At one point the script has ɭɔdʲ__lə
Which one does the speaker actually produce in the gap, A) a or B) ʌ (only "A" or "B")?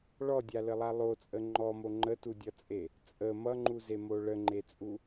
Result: A